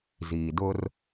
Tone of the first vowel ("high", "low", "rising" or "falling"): low